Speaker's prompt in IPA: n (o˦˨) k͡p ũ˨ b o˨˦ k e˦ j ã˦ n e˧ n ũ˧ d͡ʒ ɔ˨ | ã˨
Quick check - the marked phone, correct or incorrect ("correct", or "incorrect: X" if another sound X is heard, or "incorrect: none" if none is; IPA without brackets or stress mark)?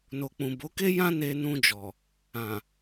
incorrect: o˨